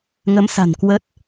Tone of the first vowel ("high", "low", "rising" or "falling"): rising